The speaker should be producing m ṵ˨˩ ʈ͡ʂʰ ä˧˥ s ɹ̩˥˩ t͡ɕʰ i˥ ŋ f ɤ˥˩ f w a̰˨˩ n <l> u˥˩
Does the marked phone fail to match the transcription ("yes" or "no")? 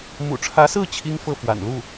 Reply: no